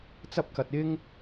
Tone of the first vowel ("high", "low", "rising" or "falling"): high